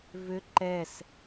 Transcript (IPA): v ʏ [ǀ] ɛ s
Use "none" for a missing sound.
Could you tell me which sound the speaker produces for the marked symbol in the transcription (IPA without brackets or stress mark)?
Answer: ǃ